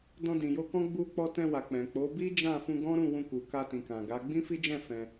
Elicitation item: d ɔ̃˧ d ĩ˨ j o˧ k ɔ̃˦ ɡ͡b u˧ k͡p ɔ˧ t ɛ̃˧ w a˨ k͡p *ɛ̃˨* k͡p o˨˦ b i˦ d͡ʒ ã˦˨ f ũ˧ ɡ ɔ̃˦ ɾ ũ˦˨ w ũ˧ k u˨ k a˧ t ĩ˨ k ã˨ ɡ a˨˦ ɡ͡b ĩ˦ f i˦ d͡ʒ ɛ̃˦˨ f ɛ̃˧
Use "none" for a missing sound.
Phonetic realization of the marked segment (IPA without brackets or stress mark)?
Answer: ɛ̃˨